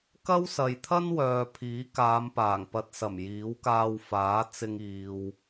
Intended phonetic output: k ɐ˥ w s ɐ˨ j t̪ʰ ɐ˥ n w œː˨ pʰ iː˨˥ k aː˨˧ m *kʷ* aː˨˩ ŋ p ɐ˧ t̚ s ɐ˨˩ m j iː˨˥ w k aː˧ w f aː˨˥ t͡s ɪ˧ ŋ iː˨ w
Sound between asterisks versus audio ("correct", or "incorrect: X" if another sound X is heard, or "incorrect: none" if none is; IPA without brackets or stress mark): incorrect: p